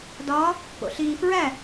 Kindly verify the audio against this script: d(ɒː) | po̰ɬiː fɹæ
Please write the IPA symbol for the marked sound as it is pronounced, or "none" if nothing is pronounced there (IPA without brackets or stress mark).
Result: ɒː